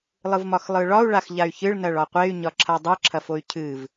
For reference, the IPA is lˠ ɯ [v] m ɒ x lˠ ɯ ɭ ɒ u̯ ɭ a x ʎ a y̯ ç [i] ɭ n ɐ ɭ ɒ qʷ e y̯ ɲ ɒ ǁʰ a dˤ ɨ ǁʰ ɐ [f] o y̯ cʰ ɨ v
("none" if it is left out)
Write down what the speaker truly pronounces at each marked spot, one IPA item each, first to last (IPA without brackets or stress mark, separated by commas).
v, ɨ, f